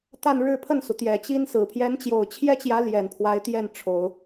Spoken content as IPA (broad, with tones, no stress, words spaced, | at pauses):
t̪a˥˧nɻɻ̩˥˧pʰə˥˩nsu˩ t̪jɛ˨˩t͡ɕi˥nsɹ̩˨˩ pʰjɛ˧˥nt͡ɕjo˨˩ʊ̯t͡ɕʰjɛ˥t͡ɕjä˧˥ ljɛ˨˩npʰwa˧˥ɪ̯t̪jɛ˥˩nʈ͡ʂʰo˨˩˦ʊ̯